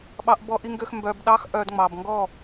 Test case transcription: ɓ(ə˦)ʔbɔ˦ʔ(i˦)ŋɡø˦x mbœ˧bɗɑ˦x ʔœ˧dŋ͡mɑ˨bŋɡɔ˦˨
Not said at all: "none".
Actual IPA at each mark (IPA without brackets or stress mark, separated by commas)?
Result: ɑ˦, i˦